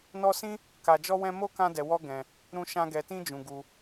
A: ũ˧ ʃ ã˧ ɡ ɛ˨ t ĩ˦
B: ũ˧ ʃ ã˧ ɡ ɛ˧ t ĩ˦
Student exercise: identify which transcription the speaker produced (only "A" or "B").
B